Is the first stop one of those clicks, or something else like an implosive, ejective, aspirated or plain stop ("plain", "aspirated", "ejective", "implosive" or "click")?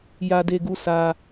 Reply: plain